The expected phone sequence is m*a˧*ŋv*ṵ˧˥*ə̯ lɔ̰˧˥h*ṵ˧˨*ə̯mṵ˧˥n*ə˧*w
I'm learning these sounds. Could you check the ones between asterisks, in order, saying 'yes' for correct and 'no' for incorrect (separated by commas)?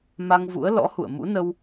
yes, yes, yes, yes